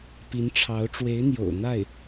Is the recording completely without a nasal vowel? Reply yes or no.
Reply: yes